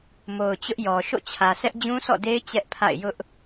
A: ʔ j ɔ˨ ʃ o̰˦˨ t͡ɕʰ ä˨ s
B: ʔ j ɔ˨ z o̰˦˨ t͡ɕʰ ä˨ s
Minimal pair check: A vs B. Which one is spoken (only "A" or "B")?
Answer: A